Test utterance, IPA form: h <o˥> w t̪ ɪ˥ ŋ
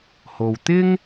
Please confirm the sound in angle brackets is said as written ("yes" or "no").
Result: no